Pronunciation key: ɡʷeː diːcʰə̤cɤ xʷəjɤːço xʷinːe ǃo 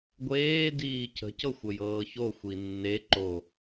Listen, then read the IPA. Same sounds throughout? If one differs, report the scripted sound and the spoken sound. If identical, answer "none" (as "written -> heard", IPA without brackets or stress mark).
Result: none